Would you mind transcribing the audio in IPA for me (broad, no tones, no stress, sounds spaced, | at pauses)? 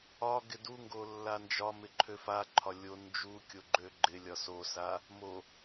ɒ ɡ ɪ d u ŋ ɡ o lː a n d͡ʒ ɒ m ɪ ǃʰ ø f a ǃʰ ɒ lʲ o n d͡ʒ u kʲ o ɡ͡ǃ ø ɡ͡ǃ ɪ lʲ ɒ s o s a | m o